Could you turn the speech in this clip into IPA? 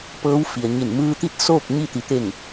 p ɤː˧˥ w f i˩ ə̯ ɲ i˧˩ n m ɯː˧ t̪ i˥˨ t̚ s oː˥˨ k̚ ɲ i˥˨ t̪ i˩ t̪ e˧˩ ŋ

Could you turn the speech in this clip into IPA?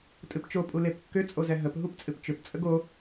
tʼ ɨ p t͡ʃ o pʼ u l e p kː ʏ t͡sʼ o z ɛ ɦ ə p ɦ u p t͡sʼ ɨ p t͡ʃ ʏ p t͡sʼ ə ɡ o

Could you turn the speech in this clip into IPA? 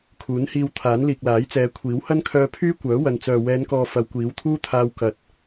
kʰ uː˨˥ n h iː˧ w t̪ʰ aː˨˥ n l iː˨ k̚ l aː˨˥ j t͡s ɛː˨˧ kʷʰ iː˨˥ w h ɐ˥ n kʰ œː˧ pʰ yː˥ kʷ œː˨˥ w ɐ˨ n t͡s œː˨ w ɛː˨˧ n k ɔː˨ f ɐ˨˧ w kʷ iː˨˥ w t̪ʰ uː˥ t̪ʰ aː˧ w k ɐ˨˥ t̚

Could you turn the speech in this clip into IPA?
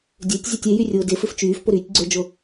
dʲ ø tʲ zʲ ø tʲ e j y rʲ ʊː d ɪ f ɪ f t͡ʃ yː f p ʊ ɾ yː tʲ ɡ͡ǀ ø d͡ʒ ʊ

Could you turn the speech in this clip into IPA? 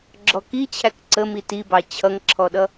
ɡ͡ǁ ɔ k i t͡ɕʰ æ k ǀ ə m i t i b ɑ t͡ɕʰ ʌ ŋ ǁʰ ɔ ɗ ʌ

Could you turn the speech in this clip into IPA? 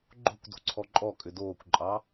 ɡ͡ǃ o̤ kʷ d o̤ ǀʰ ɔ ǃʼ ɔ kʼ ʏ d oː kʷ ǃʼ ɑ

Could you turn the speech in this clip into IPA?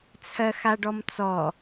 t͡sʰ ɜ x a ɖ ɔ m t͡s ɔ

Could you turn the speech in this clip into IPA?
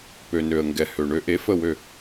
p ø˩ n ø˩ ə̯ ŋ ɡ ɛ˩ h ø˩ ɳ ø˨˩˦ ʔ e˩˥ f ə˧˩ w ø˧˩

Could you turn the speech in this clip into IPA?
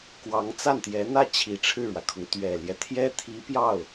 k w ɑ˧˥ ŋ t͡s a˥˩ n t̪ j ɛ˧˥ n̪ ä˥˩ t͡ɕʰ i˨˩ ʈ͡ʂʰ ɻ̩˥˩ ɻ w ä˩ kʰ ʊ˩ ŋ t̪ ɥ ɛ˨˩ l j ɛ˦ t̪ʰ j ɛ˥ t̪ʰ i˧˥ p j ɑ˥˩ ʊ̯

